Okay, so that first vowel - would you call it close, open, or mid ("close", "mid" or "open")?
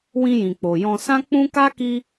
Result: close